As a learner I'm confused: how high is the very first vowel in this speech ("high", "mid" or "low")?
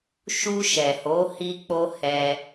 high